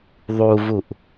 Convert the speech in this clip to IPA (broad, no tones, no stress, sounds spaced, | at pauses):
ðˤ u v u ʔ